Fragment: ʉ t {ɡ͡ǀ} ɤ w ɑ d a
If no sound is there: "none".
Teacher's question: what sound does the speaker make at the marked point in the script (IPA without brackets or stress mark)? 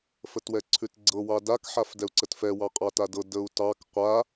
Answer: ɡ͡ǀ